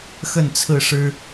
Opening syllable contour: falling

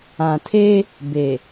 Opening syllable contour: low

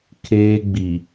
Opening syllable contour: high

